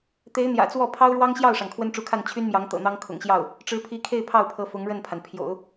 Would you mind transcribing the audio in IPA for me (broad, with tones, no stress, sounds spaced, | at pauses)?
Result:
t̪ e˧˥ ɪ̯ n̪ j ä̰˨˩ t͡s w ɔ˥˩ pʰ ɑ˥ ʊ̯ ɻ w ɑ˥ ŋ ɕ j ɑ˥˩ ʊ̯ ʂ ɑ˩ ŋ kʰ w ə˥ n ʈ͡ʂ u˧˥ kʰ a˥˩ n t͡ɕʰ y˥ n m j ɑ˧˥ ŋ t̪ ɤ̰˨˩ n̪ ɑ˥ ŋ kʰ ʊ̰˨˩ ŋ ɕ j ɑ˥˩ ʊ̯ | ʈ͡ʂ ɻ̩˧˥ pʰ i˧˥ kʰ e˥˧ ɪ̯ pʰ ɑ˥˩ ʊ̯ pʰ ɤ˧˥ f ʊ˧˥ ŋ ɻ ə˥˩ n pʰ a˩ n pʰ j o̰˨˩˦ ʊ̯